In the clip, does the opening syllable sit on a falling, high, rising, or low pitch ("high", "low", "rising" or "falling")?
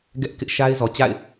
high